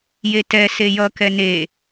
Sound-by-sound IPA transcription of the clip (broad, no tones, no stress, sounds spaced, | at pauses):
j e t ɛ s e j ʌ k ɛ n e